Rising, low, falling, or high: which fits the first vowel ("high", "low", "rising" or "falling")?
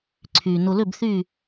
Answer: low